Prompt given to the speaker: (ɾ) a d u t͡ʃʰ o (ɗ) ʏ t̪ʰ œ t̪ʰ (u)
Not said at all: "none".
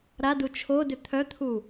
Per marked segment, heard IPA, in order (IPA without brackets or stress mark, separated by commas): ɾ, d, u